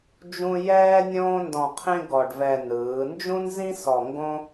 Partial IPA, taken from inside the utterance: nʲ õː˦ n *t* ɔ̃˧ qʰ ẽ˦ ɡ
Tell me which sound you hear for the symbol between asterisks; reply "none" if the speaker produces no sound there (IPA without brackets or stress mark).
d